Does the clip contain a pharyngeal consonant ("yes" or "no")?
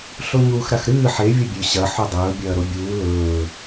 yes